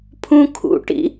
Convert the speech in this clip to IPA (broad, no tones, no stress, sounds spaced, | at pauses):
pʰ ũ kʰ ṵ ʈ ḭ